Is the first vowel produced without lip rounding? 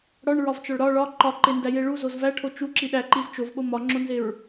no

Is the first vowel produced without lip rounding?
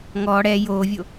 no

